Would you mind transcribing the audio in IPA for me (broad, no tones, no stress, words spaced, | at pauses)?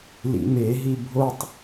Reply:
lḭmeɦi bʱotˤ